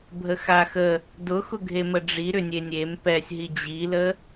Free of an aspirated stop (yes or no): yes